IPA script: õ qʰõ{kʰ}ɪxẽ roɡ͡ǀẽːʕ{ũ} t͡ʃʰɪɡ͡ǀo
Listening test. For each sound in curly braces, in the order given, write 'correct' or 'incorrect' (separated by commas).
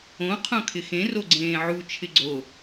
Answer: correct, incorrect